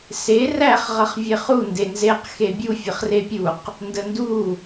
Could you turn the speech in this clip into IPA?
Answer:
s e r æ χ ʁ ʌ χ vʲ e χ u n d e n z e q x e bʲ u fʲ ə χ r e pʲ u q | n d ə n d u

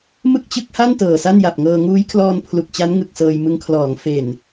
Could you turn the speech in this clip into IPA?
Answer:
m ɯ˥˩ k̚ t͡ɕ ɯ˦˥ k̚ h a˥˩ n t ɤː˨˩ s a˥˩ n j a˨˩ p̚ ŋ ɤː˧ ŋ uː˦˥ j kʰ l ɔː˧ n pʰ l u˨˩ k̚ t͡ɕ a˦˥ n ŋ ɯ˨˩ k̚ s ɤː˧ j m ɯ˧ ŋ kʰ l ɔː˩˦ ŋ f e˨˩ n

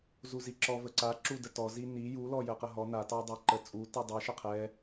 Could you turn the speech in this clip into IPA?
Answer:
z u z i ǁ ɔ v ə ǀ a ǁ u d ə t ɔ z i n i j u l ɔ j ə q ə ɦ ɔ n a t ɑ dˤ a ǃ ə t͡sʼ u t i dˤ ɛ ʃ ə qʰ ɛ

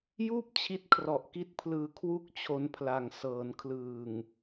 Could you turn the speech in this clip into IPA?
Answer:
j uː˥˩ p̚ t͡ɕʰ i˦˥ t̚ kʰ r ɔ˨˩ ʔ k i˦˥ t̚ pʰ l ɯː˧ kʰ w u˦˥ k̚ t͡ɕʰ o˦˥ n pʰ l a˨˩ ŋ s ɤː˩˦ n kʰ l ɯː˨˩ ŋ

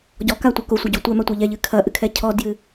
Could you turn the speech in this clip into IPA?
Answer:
ɟ ɔ k a tʷ ɐ k o sʷ ɐ ɟ o tʷ ɛ m a tʷ ɛ ʎ ɛ ʎ ɨ kʰ ɐ ʔ ɨ kʰ ɛ cʰ ɔ d j ɨ

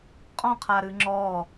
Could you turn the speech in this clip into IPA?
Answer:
qʼ ɔ̃ qʰ a ɾ ɨ ŋ͡ǁ ɔ

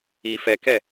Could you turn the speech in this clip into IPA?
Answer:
i f ɛ k ɛ

